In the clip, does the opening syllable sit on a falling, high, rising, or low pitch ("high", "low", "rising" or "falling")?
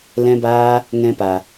high